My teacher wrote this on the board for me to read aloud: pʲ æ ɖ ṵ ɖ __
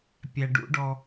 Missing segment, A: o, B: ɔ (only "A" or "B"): B